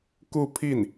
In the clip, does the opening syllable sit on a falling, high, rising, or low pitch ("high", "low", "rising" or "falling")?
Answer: falling